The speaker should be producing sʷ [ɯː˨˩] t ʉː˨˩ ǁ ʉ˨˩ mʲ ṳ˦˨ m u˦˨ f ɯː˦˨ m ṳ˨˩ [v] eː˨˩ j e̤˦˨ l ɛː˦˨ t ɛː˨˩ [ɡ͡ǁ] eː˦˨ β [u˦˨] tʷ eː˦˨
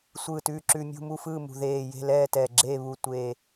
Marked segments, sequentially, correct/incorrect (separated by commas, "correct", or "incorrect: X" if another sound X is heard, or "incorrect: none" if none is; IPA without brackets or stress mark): correct, incorrect: ð, correct, correct